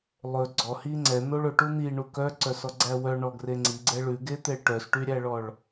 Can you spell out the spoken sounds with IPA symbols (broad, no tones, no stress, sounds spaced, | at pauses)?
lˠ ɵ ɡ͡ǀ ɔ h i ŋ͡ǀ ɛ n̪ o ɭ ɵ ʈ u n̪ i ɳ u k œ ǀ œ s ɔ ɡ͡ǀ æ w œ ɳ ɔ ɡ r e ŋ͡ǀ i ɡ͡ǀ ɛ ɭ ʉ ɡ e t̪ e ɭ ʈ œ s ʈ y ɾʲ æ ɭ ɔ ɭ